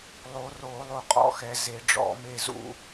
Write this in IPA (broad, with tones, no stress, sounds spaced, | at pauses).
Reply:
lˠ o˨˩˦ r o˨˩˦ lˠ o˨ qʼ ɔ̰˨ x ɛ˨ z e˨˩˦ ɖ͡ʐ ɔ̰˨˩˦ m e˦ z ṵ˦